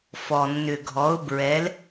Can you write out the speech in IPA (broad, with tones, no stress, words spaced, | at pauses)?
fɔ˩ nːʏ˩ɡʱɔ˩˧ʊ̯bɹɛ˩˧l